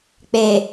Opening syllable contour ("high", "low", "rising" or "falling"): low